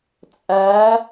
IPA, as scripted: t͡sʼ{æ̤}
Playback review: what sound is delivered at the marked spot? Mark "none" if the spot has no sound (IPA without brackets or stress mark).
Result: æ